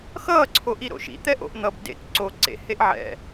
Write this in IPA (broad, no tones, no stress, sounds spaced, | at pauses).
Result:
x ʌː ǀʰ o ʔ i ɾ o̰ ʃ ḭ t̪ ɛ ʔ o̰ ʔ n̪ ʌ b d ḛ k ǀ o ǀ ḛ h e ʔ ʕ ɛ̰